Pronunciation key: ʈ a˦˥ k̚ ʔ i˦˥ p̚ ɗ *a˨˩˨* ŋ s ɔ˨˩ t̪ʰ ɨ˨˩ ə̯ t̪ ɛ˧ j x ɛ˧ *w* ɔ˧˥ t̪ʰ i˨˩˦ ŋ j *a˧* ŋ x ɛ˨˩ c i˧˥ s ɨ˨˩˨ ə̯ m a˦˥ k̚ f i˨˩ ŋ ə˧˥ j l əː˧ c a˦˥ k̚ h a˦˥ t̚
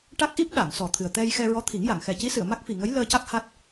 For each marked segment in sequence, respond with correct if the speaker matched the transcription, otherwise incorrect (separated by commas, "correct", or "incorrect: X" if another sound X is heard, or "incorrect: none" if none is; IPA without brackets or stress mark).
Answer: correct, incorrect: ɹ, incorrect: a˨˩˨